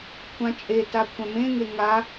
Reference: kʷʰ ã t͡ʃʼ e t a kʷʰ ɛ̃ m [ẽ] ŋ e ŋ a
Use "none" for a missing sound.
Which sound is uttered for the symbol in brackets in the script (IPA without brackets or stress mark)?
ẽ